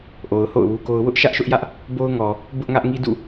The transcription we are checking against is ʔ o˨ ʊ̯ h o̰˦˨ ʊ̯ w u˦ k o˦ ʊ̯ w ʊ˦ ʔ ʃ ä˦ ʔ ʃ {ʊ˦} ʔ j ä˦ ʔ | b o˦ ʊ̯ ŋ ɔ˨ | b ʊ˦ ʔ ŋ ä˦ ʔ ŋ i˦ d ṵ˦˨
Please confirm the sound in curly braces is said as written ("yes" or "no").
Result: yes